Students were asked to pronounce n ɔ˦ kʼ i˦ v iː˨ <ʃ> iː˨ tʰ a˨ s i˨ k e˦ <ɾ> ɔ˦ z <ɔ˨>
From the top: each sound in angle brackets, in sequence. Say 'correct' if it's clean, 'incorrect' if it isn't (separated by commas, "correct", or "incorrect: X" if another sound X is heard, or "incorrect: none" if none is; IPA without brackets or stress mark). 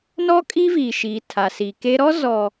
correct, correct, correct